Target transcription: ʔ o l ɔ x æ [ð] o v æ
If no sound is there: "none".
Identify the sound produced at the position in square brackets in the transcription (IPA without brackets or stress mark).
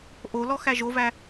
ʒ